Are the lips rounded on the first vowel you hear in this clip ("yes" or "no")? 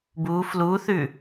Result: yes